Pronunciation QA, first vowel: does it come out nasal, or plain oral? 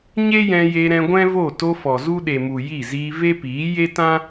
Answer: oral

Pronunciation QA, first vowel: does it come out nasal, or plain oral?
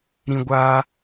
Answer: nasal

